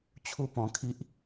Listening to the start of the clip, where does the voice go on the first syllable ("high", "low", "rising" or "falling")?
high